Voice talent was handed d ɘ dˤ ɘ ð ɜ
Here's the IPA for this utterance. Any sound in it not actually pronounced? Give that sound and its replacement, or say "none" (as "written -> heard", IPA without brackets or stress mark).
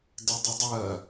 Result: ð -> dˤ